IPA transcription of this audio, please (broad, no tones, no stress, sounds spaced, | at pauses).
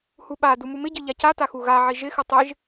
h u ɓ a d u m u m ɪ ɟ ɨ ʎ a c a t a x u ɣ a ʕ i ʒ ɪ x ɨ tˤ ɪ ʒ